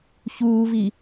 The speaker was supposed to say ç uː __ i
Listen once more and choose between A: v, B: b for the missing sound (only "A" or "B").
A